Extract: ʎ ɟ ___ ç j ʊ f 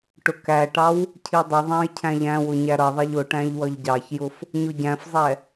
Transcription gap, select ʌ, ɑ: ɑ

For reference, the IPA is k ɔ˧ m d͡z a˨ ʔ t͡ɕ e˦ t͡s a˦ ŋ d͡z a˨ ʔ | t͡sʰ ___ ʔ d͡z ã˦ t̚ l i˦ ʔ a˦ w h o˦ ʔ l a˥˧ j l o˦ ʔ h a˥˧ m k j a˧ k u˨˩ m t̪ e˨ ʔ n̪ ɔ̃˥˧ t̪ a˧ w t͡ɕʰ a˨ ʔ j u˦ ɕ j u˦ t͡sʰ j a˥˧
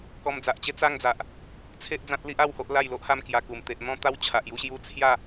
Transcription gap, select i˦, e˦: e˦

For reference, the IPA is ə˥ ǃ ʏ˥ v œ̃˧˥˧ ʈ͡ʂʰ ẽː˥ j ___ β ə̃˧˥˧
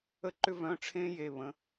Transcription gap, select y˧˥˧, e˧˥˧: e˧˥˧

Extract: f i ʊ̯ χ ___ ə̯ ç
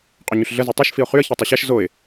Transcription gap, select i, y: y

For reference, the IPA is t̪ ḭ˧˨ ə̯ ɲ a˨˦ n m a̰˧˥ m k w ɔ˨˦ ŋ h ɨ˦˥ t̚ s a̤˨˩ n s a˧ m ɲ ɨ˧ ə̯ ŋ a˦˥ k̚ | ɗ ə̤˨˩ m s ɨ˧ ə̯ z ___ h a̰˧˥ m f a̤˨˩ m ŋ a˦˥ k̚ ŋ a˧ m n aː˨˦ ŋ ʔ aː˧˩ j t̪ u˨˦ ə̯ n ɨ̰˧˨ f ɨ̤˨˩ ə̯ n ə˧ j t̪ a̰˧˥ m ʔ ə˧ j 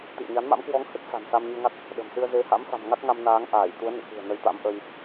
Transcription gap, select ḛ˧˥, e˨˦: e˨˦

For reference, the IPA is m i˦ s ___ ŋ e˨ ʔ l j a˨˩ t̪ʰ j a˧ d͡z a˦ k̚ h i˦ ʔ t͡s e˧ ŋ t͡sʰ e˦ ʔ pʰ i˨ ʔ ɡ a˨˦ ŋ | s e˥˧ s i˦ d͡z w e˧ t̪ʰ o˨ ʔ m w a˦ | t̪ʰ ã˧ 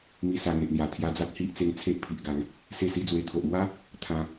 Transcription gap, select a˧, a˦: a˧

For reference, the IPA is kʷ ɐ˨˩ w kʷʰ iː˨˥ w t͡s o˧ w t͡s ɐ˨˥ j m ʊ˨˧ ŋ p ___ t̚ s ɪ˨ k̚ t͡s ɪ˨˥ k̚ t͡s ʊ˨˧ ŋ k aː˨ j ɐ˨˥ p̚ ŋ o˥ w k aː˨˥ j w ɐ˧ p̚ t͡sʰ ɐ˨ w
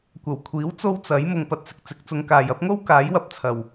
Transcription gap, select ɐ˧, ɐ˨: ɐ˨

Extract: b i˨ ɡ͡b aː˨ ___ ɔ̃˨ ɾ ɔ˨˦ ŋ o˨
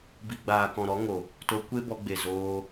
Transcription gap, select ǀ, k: k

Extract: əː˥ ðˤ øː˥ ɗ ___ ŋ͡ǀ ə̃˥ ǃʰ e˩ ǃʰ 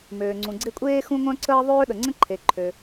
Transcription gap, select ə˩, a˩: ə˩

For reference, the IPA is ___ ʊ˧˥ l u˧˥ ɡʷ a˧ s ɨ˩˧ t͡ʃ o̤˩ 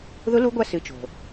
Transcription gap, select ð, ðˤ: ð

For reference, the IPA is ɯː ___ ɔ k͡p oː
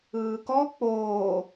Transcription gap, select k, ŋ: k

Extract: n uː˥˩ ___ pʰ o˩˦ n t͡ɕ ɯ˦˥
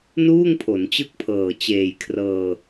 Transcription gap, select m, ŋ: ŋ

